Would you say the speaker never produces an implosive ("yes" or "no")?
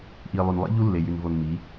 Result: yes